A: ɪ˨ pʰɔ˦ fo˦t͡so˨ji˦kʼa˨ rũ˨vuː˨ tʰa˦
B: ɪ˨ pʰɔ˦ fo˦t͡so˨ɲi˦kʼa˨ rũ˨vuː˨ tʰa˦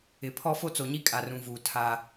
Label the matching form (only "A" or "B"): B